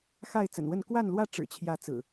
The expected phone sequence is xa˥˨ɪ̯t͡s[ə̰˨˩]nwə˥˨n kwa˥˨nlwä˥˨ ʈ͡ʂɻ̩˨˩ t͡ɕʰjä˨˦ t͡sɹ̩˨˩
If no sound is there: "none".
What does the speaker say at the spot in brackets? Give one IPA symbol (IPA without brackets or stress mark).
ə̰˨˩